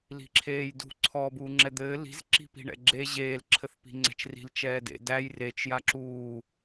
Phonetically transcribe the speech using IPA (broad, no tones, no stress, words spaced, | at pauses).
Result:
li̤ǁʰeːjdṳ ǀʰɔːbuːŋ͡ǁɛd̪ɘː li̤z ǁi̤pi̤ɳɛ̰ɡ͡ǁe ʑeːl ǁʰɘθpi̤ŋ͡ǀɛ̤t͡ʃri̤l t͡ʃɛːdḛ dæj ret͡ʃ jaǁuː